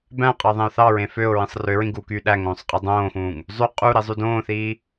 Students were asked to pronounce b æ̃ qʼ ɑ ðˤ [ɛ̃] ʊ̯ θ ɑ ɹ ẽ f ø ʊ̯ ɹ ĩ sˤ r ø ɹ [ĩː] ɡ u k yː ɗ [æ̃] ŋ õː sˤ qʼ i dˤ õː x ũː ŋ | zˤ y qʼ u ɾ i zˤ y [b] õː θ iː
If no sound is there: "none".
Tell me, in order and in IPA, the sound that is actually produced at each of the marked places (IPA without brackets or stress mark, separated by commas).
ẽ, ĩ, æ, d